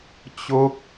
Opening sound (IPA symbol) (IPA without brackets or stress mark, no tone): t͡ɕ